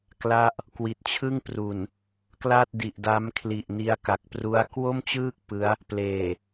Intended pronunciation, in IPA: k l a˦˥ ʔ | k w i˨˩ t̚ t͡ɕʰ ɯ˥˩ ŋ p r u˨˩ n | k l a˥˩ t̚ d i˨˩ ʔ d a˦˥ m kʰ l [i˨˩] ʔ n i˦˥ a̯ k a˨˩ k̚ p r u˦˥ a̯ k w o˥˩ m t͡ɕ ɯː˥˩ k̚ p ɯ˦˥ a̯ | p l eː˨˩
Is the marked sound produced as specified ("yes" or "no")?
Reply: yes